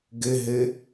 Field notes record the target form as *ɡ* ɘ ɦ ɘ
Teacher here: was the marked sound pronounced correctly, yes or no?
yes